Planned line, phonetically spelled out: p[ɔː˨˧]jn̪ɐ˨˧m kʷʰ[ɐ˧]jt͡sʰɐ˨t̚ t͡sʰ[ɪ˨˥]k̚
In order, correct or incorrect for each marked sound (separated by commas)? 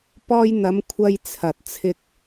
incorrect, correct, incorrect